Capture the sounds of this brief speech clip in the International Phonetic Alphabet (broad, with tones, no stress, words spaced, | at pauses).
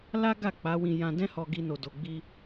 la˦ɡa˦˨ k͡pa˨˦wĩ˧ jã˧dɛ̃˦hɔ˧ ɡi˦no˧do˧ ɡ͡bi˧